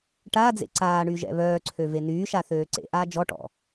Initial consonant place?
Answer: retroflex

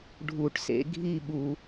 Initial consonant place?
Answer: retroflex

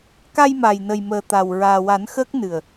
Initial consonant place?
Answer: velar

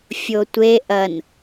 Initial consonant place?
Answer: labial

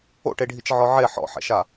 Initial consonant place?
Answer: retroflex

